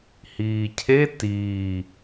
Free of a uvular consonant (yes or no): yes